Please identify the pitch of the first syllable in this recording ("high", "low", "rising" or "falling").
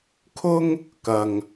high